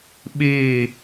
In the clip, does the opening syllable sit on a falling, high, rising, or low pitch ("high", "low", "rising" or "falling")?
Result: falling